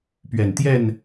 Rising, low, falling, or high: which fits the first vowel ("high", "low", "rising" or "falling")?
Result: low